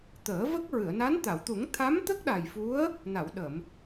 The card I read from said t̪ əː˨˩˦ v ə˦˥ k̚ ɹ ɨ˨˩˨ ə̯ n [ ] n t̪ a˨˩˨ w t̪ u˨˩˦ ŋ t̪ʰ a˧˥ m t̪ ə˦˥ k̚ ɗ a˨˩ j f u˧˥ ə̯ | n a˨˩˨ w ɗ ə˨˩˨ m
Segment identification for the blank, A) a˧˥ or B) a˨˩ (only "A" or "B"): A